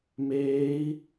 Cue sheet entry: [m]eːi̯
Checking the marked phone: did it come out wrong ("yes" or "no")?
no